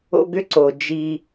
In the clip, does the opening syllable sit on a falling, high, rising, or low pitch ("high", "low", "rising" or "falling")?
high